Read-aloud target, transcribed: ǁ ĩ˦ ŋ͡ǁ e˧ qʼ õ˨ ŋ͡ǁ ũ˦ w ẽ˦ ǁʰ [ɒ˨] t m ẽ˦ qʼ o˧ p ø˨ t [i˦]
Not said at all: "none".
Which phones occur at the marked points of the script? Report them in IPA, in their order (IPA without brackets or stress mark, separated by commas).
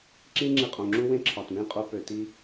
ɒ˨, i˦